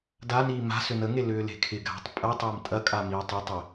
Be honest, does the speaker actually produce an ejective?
yes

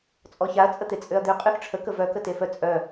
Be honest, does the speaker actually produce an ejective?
yes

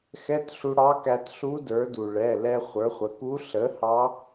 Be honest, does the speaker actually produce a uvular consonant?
yes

